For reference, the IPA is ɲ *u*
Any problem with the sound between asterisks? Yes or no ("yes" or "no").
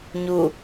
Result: no